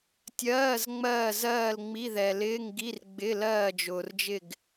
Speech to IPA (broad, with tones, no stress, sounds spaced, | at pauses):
tʲ ɜː˧˥˧ z ŋ͡m ɜː˦˨ z ɜː˦˨ l ŋ͡m i˧˥˧ ð ɛ˨ l ɪː˧˥˧ ŋ ɡ i˧˥˧ r ɡ͡b ɪ˧˥˧ l ɜː˦˨ d͡ʒ ʊː˨ r d͡ʒ ɪ˦˨ ɡ